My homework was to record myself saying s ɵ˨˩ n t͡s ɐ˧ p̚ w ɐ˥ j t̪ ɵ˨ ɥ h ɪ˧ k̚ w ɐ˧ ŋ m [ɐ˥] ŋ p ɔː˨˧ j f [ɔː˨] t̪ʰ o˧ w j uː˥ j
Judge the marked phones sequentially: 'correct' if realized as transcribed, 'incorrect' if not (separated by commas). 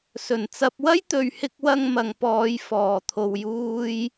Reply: incorrect, correct